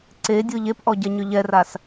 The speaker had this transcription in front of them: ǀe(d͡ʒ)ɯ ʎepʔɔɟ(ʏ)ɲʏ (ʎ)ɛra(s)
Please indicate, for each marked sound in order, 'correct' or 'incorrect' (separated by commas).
incorrect, incorrect, correct, correct